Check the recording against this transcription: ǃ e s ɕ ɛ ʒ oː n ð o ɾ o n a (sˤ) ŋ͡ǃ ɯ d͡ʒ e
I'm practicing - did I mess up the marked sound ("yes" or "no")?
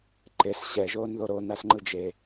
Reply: yes